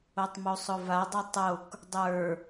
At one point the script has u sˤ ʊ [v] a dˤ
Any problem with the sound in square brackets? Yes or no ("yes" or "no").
no